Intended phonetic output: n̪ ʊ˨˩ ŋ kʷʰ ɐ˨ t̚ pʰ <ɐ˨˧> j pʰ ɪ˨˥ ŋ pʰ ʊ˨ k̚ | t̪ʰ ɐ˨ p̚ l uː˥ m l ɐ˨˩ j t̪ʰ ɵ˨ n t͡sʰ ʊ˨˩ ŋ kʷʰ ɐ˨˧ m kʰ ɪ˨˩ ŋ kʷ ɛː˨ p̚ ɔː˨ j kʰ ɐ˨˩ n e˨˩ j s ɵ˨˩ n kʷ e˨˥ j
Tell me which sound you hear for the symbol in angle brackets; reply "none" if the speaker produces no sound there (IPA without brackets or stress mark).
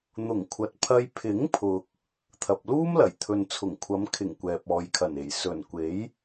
ɐ˧